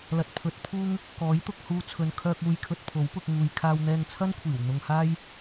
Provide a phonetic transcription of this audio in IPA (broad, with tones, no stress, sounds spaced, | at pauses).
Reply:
l ɐ˨ t̚ pʰ ɵ˨˥ t̚ pʰ uː˥ ŋ | k ɔː˨˥ j t̪ ʊ˧ k̚ h uː˧ t͡sʰ ɵ˨ n kʰ œː˧ k̚ uː˧ j kʰ ɵ˧ t̚ pʰ o˨˥ w p ʊ˧ k̚ ŋ uː˨ j kʰ aː˧ w n̪ ɛː˧ ŋ t͡sʰ ɐ˥ n kʷʰ iː˨˩ w n̪ ʊ˧ ŋ h aː˥ j